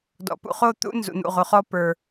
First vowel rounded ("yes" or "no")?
yes